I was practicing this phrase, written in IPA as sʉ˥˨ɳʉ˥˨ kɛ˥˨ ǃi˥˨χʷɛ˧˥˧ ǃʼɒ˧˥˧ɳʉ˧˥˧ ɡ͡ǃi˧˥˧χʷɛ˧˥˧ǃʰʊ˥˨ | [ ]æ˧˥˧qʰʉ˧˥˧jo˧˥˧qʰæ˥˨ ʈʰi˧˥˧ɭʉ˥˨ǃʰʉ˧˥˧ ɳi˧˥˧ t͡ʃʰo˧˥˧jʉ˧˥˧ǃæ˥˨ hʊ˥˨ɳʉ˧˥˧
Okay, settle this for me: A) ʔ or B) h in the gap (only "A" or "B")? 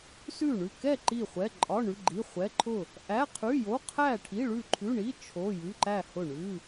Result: A